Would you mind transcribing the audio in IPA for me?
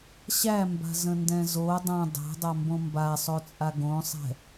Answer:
ɕæmba̤zə̃ndɛ̃ zo dˤã dˤæ̤dˤambõ mbasˤot͡sʼa ɡõsˤɛ̤

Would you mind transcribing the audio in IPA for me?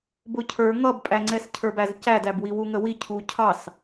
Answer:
bʊcʰə˞ ŋʌbpʼæŋ͡ǀɛs cʰə˞bæzcædæb wiwuŋəwi cʰucʰɑs

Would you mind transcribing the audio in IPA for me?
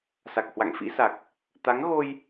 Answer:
sa˨˩k̚hwa̰˧˨ŋfḭ˧˥sa˨˩k̚ | t̪a˨˦ŋɣo˧j

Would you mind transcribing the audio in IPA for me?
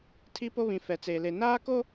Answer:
tʰi˦po˦βĩ˨ fɛ˨t͡seː˨le˨ naː˦ko˦

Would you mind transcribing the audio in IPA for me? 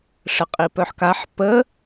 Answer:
ʂəqʼipœħkaħ pə

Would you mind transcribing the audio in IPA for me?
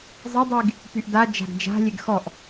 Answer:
zˤədˤiɡ | pyʔdad͡ʒa̤ɡ d͡ʒa̤lʲeɡ xɔʔ

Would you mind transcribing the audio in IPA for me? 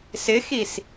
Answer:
sɪxis

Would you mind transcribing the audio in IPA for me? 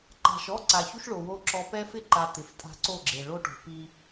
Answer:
ǃa̤˨ʃɔ˦ ǀa˨ çu˦ʃɭo˨wo˦ ǁɔ˦ pɛ˦fɪ˦ǃa˨ t̪ɪ˨ftʼa̤˦ǀo˦˨ɡ͡ǁe˨ ɭo˦ʈo̤˨pi˦

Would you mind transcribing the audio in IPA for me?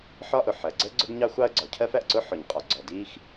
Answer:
ħɒ˥ʔʊ˩ħɜ˩ ɡ͡ǀə˥ ɡ͡ǀʊ˥ɡɲɑ˥xʷɑ˥ə̯ ɡ͡ǀɒ˩cʰɜ˥fæ˩ʔǀʊ˥ ħʊ˩ɲqʼɒ˩ ɡ͡ǀɔ˩di˥x

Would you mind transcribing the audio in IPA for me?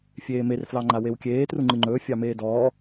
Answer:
fʲeːmer flɑŋ͡ǃawewkʲeː truŋ͡ǃɨŋ͡ǃɵː fʲɑmeːdɔː

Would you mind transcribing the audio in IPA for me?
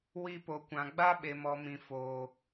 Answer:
wi˧po˨kʷã˨ ɡ͡ba˦ɓe˨mɔ˨mĩ˨ foː˨

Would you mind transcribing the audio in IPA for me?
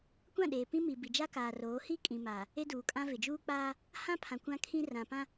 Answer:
kʷã˦˨ɗeː˨ pĩ˦ mi˨bi˨d͡ʒa˦ kaː˨roː˨˦ hi˦ kʼĩ˨maː˨ | e˦duː˨kʼã˦ vɪ˨d͡ʒuː˦k͡paː˦ | hã˦pʰã˨ kʷã˦kʰĩ˦ rã˨pã˦

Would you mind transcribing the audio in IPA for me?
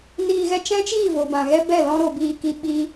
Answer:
niː˧ɣɛ˦ t͡ʃɛ̃˦t͡ʃiː˦˨ vo˨bã˨ ɣɛ˦bɛ˦˨ lɔ̃˧ɾo˨ biː˧ki˧ ɓi˦

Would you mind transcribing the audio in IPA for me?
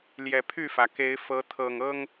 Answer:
ljɛ˨˩pʰy˥˨fä˩ke˨˦ɪ̯ fɤ˨˦ t̪ʰɤ˨˩ŋɤ˦ŋ

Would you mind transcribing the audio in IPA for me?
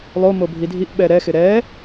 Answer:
lˠomo bʱidʱiʔɓɛ ɾɛxɪ ɾɛ

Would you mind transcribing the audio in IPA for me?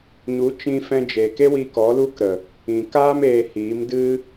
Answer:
ɲu˨˦t͡ʃĩ˧ fɛ̃˧d͡ʒeː˨ke˦wiː˧k ɔ˨˦lu˦kɾə˨ | ĩ˨kaː˦m eː˧hiː˨˦m dɨ˦

